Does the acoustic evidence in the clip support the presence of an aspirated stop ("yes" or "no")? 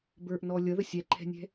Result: yes